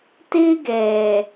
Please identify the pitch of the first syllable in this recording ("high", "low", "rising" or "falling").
high